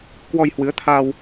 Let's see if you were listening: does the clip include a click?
no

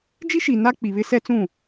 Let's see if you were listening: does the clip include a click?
no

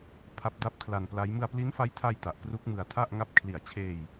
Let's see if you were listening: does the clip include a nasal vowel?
no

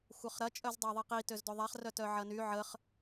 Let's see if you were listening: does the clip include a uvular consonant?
yes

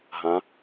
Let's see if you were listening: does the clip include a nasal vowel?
yes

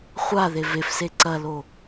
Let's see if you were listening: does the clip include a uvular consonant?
yes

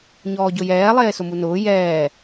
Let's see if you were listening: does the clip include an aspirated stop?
no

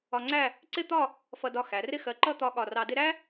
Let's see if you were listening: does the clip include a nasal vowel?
no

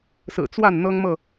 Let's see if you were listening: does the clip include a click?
no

